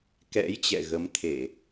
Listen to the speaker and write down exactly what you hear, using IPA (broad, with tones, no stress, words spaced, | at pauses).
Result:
kɛ̰˧˥j t͡ɕɛ̰˧˨ɣə˨˦mt̪ʰe˧˩˨